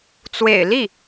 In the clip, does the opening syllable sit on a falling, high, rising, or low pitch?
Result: low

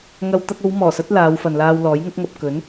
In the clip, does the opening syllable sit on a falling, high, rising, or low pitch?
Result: high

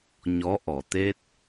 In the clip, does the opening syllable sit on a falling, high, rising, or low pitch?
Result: rising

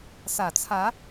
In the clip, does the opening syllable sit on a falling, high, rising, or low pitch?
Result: low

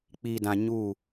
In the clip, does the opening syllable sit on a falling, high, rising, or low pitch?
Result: low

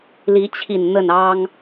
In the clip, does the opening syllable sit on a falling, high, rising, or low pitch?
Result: rising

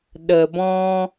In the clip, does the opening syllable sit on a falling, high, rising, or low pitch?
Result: low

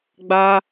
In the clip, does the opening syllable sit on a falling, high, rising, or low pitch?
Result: high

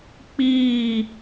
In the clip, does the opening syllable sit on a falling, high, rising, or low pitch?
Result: falling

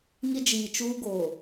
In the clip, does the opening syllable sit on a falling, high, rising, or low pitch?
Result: high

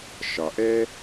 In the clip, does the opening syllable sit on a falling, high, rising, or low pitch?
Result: low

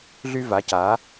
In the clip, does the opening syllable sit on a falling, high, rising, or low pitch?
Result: high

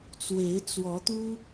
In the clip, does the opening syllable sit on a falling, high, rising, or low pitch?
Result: rising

